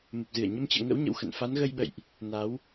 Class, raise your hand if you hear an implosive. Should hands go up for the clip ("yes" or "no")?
yes